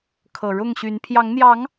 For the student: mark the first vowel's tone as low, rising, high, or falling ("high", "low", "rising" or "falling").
low